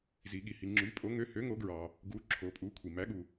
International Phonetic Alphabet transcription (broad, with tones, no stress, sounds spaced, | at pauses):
z i˩ ɠ i˩ h i˩ ŋ͡ǁ y˩˥ pʼ o˩˥ ŋ ø˩˥ h ø˩˥ ŋ o˩˥ ɡ ɹ ɑ˩ | ɡ u˩˥ ǁʰ o˩ pʼ u˩˥ kʷʰ i˩ m æ˩˥ ɠ u˩